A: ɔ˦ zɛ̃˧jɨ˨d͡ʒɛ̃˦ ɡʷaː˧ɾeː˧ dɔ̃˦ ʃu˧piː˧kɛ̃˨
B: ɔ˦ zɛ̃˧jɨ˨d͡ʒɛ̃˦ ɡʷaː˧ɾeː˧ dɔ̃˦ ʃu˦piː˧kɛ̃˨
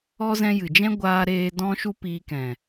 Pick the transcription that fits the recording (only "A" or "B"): B